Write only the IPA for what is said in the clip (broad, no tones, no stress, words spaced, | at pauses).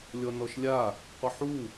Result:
lʲɔnɔʃlʲa | qʷɪħu